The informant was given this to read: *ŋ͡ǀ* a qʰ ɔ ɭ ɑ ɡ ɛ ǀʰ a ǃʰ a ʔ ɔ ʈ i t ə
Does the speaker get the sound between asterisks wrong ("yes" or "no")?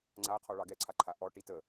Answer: no